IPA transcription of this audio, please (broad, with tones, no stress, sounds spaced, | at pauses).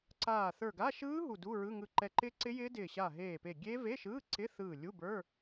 ǀ aː˧˩ θ ə˞˧˩ ɡ a˧˥˧ ʃ ɯː˦˥ ɦ u˧˩ d u˧˥˧ ɹ ɯ˧˥˧ ŋ ɯ˧˩ ǃ ɛ˧˩ ǃ ɪː˦˥ ǀ ɪ˦˥ j ɪː˦˥ d ɪː˧˩ ɕ a˧˩ ɦ eː˧˩ p e˧˩ ɡʲ e˦˥ v e˧˥˧ ʃ ɯː˧˥˧ ǀ ɪ˧˥˧ θ ɯː˧˩ lʲ u˧˥˧ b ə˞˧˥˧